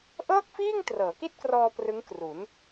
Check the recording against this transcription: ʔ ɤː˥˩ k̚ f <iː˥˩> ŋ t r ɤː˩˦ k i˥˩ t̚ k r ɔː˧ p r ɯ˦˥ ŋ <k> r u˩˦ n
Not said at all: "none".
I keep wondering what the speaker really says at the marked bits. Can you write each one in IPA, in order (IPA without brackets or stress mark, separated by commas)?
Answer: iː˥˩, k